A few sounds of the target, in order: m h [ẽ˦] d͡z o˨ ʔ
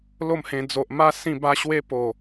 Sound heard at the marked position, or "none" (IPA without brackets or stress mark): ẽ˧